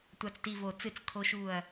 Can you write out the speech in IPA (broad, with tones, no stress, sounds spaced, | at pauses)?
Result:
tʷ a˨ t͡s t i˨ v o˨ t͡s ɨ˦˨ t͡s kʰ o˦ ʃ u˦˨ ɐ̯